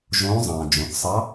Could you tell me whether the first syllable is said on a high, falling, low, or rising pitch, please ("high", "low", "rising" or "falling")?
rising